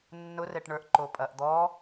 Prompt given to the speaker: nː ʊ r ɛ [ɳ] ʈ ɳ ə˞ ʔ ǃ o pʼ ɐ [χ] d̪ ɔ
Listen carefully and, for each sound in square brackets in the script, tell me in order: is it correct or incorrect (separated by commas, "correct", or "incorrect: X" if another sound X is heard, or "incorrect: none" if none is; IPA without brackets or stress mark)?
incorrect: none, incorrect: ʔ